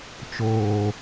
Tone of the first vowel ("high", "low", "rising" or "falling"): low